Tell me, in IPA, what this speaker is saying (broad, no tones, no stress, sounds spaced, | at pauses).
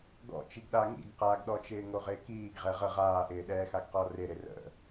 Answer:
ɡ ɔ̰ t͡ʃ i ɡ ɗ a ŋ ḭ ɡ q a ɡ ɗ ɔ t͡ʃ ɪː ŋ o ʁ ɪː k iː ɡ ʁ ɛ ʁ ə ʁ aː ʔ ɪː ɗ ɛː x a ɡ q ɔ r ɪ ɾ ɪ r ə̰